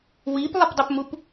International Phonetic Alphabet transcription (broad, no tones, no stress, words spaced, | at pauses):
wiplˠɪpdˤəpmup